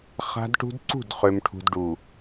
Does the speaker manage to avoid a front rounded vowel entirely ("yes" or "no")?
no